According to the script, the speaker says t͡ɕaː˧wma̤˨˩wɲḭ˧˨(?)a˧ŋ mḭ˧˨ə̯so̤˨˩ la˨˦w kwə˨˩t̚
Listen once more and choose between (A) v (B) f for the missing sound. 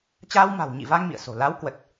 A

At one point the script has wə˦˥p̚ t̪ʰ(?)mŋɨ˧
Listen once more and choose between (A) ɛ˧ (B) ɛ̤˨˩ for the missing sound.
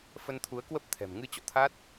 B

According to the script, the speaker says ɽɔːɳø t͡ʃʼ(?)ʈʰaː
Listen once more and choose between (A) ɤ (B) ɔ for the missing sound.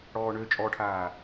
B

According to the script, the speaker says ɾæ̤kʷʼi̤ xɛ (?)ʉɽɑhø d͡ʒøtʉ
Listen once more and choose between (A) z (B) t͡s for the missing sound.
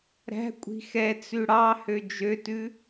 B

